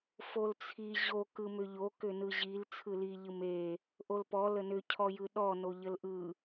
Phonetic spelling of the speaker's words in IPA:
f o l t͡sʰ i ʑ o k ɯ m ʏ ʎ o k ʏ n ɯ ʑ i l t͡sʰ ɯ l i ʎ ɯ m e | ʔ o l p ɔ l ə n ʏ cʰ ɔ j ɯ ɗ ɔ n o ʎ ə l ʔ ɯ

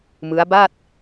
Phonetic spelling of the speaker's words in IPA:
m ɯ˦˥ a̯ b a˥˩ t̚

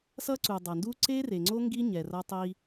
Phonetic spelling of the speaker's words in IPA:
s ʌ˦ ǀ u˨ dˤ a˨ n d u˦ ǀ e˦ r e˨ ŋ͡ǀ o˦ ŋ ɡ i˦ ɲ ɛ˨ r ʌ˦ tˤ i˦

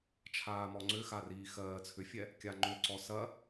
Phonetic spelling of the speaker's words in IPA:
t͡ʃʰ aː m ɔ ŋ͡ǀ ʏ x a r iː x ɜː t͡sʰ ʏ fʲ ɛ | kʲ a ŋ͡ǃ ʏ ǀ ɔ s ɐ

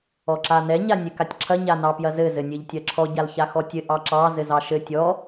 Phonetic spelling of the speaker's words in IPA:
ɔ ǁ a n ɛ ɲ a nʲ ɘ k a tʲ ǁʰ ɐ ɲ a n ɑ p j ɐ z ɘ z ɘ nʲ ɘ ʎ tʲ ɐ ǁʰ ɔ ɟ a l ç a x ɔ tʲ ɘ ʔ ɑ ǁ ɑ z ɘ z ɑ ʃ ɘ tʲ ɔ

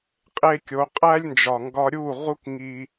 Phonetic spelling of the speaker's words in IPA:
qʼ e˧ kʲ o˨˦ qʼ æ˦ lʲ n d͡ʒ ɒ˨ ŋ ɡ ɒ˧ ɾʲ u˦˨ ʁ u˦ k ŋ i˧

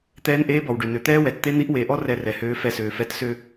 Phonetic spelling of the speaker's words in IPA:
t̪ ɛː˧˥ n ʔ eː˧˥ b ɔ˩ w ɖ ø˩ n ø˩ t̪ ɛː˥ w ɛ˩ t t̪ e˥ n̪ i˧˥ ʔ w e˩˧ ʔ ɔ˥ r ɛ˧ r ɛ˩˧ h øː˧˥ f ɛ˧ s øː˩ f ɛ˧˥ t s ø˧

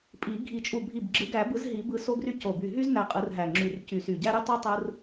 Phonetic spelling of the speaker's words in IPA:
pʼ i˨˩˦ ɡʱ i˨˩˦ t͡ʃʼ u˧˩ bʱ i˧˩ b ɡ͡ǁ ɯ˨˩˦ ɡ æ˨˩˦ b ɯ˨˩˦ z ɦ i˨˩˦ b ɯ˧˩ s o˦ ɡ r y˦ c o˧˩ b y˧˩ ɦ y˦ z n æ˧˩ qʼ ɯ˨˩˦ r ɦ æ˧˩ ŋ͡ǁ y˧˩ r c y˧˩ s y˧˩ ɟ æ˦ ɾ y˦ tˤ i˦ tˤ ɯ˦ r

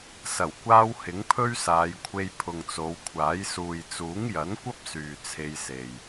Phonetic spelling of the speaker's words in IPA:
s ɐ˨˩ w kʷ aː˧ w h ɪ˨˥ ŋ pʰ ɵ˥ ɥ s aː˨˧ j kʷʰ e˧ j pʰ ʊ˨ ŋ t͡s o˨˧ w kʷʰ aː˨˥ j s uː˨ j t͡s uː˨˥ ŋ j ɐ˨˥ n kʷ ɐ˥ p̚ s yː˨ t͡sʰ e˧ j s e˨ j

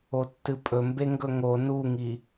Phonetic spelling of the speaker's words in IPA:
o tː ɨ pʼ ɵ m b e ŋ ɡ ɵ ŋ o n u ŋ i

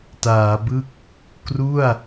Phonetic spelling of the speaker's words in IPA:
t aː˩˦ b ɯ˥˩ k̚ | k r u˥˩ a̯

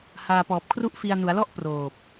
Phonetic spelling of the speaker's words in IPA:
h aː˧ p ɔː˨˩ p̚ kʰ r u˥˩ ʔ f i˧ a̯ n u˩˦ a̯ l ɔ˥˩ ʔ p r oː˨˩ p̚

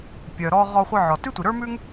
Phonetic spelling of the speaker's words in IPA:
pʲ œ˩ ɾ ɔ˧ ʁ ɔ˧ χʷ ə˞˧ ʕ ɔ˩ t ʉ˥ tʷ i˩ ɾ ə˞˥ m ʉ˥ ŋ

